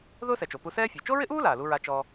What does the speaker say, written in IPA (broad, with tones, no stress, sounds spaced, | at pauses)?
ð ʊː˥ s ɛ˩ t͡ʃ o˩ p u˧ s ɛː˥ fʲ ɛ˩ t͡ʃ o˥ ɹ ɪ˥ ʔ uː˥ l aː˩ l u˧ ɹ a˧ t͡ʃ ɔ˥